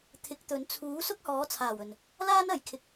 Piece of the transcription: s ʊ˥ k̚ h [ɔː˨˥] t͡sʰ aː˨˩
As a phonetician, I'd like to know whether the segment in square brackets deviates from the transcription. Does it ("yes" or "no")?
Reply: no